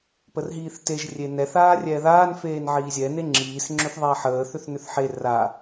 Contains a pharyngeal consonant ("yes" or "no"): yes